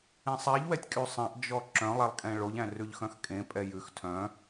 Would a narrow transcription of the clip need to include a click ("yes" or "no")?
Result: yes